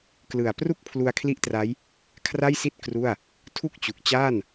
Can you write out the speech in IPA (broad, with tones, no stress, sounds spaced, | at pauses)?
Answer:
k l ɯ˨˩ a̯ p r u˥˩ k̚ pʰ l u˧ a̯ kʰ l i˦˥ ʔ t r a˦˥ j | kʰ r a˥˩ j s i˥˩ t̚ k r u˥˩ a̯ | tʰ u˥˩ k̚ t͡ɕ u˨˩ k̚ t͡ɕ aː˥˩ n